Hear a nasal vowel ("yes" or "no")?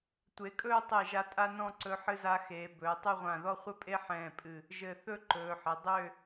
yes